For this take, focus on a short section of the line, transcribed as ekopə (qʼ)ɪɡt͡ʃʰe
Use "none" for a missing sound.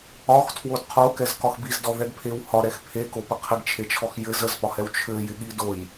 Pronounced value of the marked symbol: qʰ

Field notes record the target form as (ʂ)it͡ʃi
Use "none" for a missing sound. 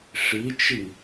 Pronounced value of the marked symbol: ʂ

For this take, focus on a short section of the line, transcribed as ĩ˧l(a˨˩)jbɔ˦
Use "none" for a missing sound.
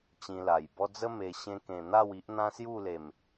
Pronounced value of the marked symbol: a˨˩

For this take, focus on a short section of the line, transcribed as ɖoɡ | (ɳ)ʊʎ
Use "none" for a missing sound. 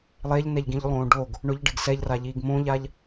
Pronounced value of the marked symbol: ɳ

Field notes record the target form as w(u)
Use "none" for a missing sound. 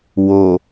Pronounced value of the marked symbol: o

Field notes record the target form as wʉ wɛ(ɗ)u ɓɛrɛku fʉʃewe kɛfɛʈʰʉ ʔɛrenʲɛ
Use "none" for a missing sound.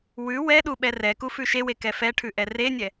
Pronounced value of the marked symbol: ɗ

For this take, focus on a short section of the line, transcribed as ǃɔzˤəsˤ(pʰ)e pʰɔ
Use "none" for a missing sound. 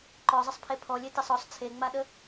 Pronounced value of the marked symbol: pʰ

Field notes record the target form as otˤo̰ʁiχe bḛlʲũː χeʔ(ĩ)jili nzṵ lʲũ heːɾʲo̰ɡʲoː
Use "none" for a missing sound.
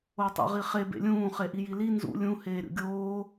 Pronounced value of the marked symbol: i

